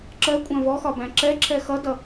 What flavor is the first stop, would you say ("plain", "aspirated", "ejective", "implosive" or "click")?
click